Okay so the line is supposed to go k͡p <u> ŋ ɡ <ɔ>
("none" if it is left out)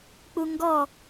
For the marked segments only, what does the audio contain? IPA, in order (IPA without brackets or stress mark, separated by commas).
u, ɔ